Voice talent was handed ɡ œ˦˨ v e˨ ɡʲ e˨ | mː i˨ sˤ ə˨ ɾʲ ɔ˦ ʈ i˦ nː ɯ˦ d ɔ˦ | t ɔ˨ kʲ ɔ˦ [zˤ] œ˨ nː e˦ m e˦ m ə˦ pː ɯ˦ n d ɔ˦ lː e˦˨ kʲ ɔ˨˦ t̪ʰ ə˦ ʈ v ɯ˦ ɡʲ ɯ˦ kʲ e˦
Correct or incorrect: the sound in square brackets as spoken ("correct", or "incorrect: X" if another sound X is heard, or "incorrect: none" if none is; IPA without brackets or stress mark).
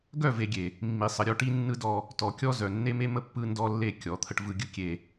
incorrect: z